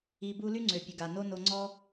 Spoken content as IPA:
i˧ b u˦ l y˦ ŋ͡ǀ ø˨ pʲ ə˨ ɡ a˨ n o˦ n o˧ ŋ͡ǀ ɔ˦

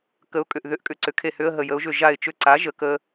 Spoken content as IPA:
k ə˩˥ ʊ̯ kʼ ʏ˧˩ ʔ ð ʏ˩˥ ʔ kʼ ʏ˧˩ ǀ ʏ˩˥ kʰ e˧˩ h ʏ˧˥˧ ə̯ ɦ ə˧˩ j ə˩˥ ʊ̯ ʒ ʏ˧˩ ʒ a˧˩ ɪ̯ t͡ʃ ʏ˧˩ ǀ a˩˥ ʒ ə˩˥ k ə˧˥˧

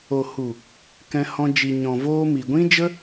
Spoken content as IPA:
o˨ h u˨ | k ɛ̃˧ h ɔ̃˧ d͡ʒ i˨ ɲ ɔ̃˨ v oː˧ m i˨ ɡʷ ĩ˦ d͡ʒ ə˦

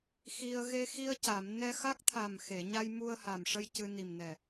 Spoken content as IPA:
x i˧ ə̯ ɣ e˧ x i˧ ə̯ c a˨˩˨ m n ɛ˧ x a˦˥ k̚ t̪ʰ a˨˩ m x e˨˩˨ ɲ a˧ j m u˧ ə̯ h a˨˩ m ʂ ə˧ j c ɨ˧ n i˨˩ m n ɛ˨˩

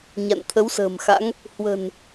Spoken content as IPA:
ɲ a̰˧˨ n t̪ʰ ə˨˦ w s ə̤ː˨˩ m x a̰˧˥ ŋ | h w ə̤˨˩ n

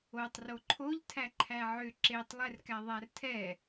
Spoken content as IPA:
o tˤ r o ǃʰ o ʎ tʰ æ ǃʰ æ ʕ ʏ ǁ e tˤ lˠ ɛ r k æ ðˤ æ r tʰ ɛ

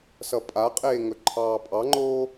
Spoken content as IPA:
s ʌ pʼ a qʼ eː ŋ ɵ ǃʰ ɑː pʼ ɑ ŋ͡ǃ oː

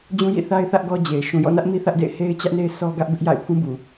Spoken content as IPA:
d͡ʑ ũ˦ j ḭ˦˨ θ a˦ ɪ̯ θ ä˦ ʔ ɡ ɔ˦ d͡ʑ e˨ ɪ̯ ʃ ũ˨ j ɔ̰˦˨ n ä˦ ʔ m i˦ θ ä˦ ʔ d ḛ˦˨ ɪ̯ h e˦ ɪ̯ t͡ɕ ä˦ ʔ n e˦ ɪ̯ s ɔ˦ ɡ ä˦ ʔ b ɪ˦ ʔ j a̰˦˨ ɪ̯ pʰ ũ˦ b u˨

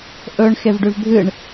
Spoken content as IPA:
ʔ ɵ ɳ x e v ɖ ʉ v bʱ ɨ ɳ

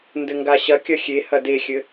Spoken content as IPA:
n d ɘ ŋ ɡ a ɕ ɐ kʲ ɐ xʲ e h ɐ d e xʲ ɘ

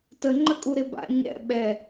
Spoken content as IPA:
t ə ŋ͡ǃ ə kʼ u ɾ ɪ b a̰ ɲ ɛ̰ ɓ ɛ

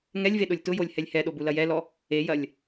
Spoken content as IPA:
ŋ ɛ lʲ v e ɗ ʊ lʲ t ʊ j o lʲ h ɛ lʲ h ɛ ɗ o b u l ɐ j ɛ l ɔ | e j ɐ lʲ

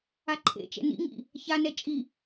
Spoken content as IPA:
a ǃʰ ḛ t͡ʃ ɛ̰ n ḭ ŋ ḭ | ç a n ɛ t͡ʃʼ i

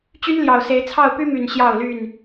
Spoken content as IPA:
t͡ɕ y˦ n l j ɑ˨˩ ʊ̯ s e˨˦ ɪ̯ t͡sʰ ɑ˥˨ ʊ̯ p y˦ m y˨˩ n ɕ j ɑ˥˨ ʊ̯ l y˥˨ n

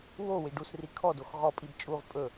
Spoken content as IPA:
w o w i ɖ u s r i kʰ ɔ d o x ʁ ɔ pʼ i b t͡ʃʼ u ʁ pʼ ɵ

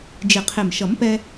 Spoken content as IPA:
d͡ʒ ɪ˨˩ qʰ ɪ˨˩ m ʃ ʌ˨˩˦ m p ɛ˧

